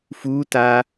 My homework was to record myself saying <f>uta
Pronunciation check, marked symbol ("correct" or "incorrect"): correct